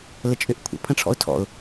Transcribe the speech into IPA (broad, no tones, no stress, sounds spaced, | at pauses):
l ə t͡ʃʼ ʏ ʔ kʷʰ ə̰ pʰ ə̃ ʈ͡ʂʰ ɔ̰ ʊ̯ tʰ ɔ̰ ʊ̯